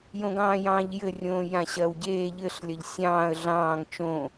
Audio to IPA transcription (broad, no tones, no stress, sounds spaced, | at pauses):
j õ ɡ ɑ̃ː j ɑ̃ː ʎ j ɘ rʲ õː j ã ɕ ɐː w ɟ eː ʎ ɘ ɬ lʲ ɐ ʎ sʲ ɑ̃ː ə̯ ɮ ɑ̃ː ŋ t͡ʃ õ